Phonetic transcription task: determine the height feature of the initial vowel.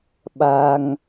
low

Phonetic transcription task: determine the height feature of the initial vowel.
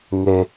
mid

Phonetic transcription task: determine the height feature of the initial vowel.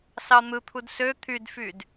low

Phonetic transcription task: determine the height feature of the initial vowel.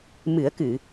high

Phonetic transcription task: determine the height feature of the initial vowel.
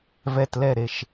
mid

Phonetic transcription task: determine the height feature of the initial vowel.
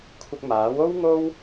high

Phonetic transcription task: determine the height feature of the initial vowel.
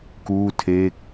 high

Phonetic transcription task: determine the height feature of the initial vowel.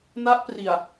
low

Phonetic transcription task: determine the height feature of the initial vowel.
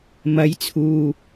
low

